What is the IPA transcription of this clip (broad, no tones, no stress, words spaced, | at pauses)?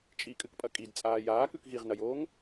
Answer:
t͡ʃʼikʼɨkpʼɐ kʼidt͡sʼaː jaːkʉk ɣiʁnɐjoːŋ